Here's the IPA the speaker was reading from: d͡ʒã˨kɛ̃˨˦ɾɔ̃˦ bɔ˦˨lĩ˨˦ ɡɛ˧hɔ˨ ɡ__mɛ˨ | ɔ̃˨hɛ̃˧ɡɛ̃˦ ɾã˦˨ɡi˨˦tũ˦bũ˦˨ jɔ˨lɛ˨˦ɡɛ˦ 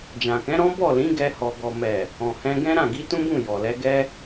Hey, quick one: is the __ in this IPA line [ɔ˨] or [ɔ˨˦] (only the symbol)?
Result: ɔ˨